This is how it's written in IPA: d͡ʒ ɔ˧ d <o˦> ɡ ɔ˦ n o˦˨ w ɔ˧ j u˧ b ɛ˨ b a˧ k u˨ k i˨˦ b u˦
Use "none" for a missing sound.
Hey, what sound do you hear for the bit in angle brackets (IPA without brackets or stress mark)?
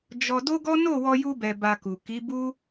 o˦